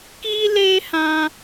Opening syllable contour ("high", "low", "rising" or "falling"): high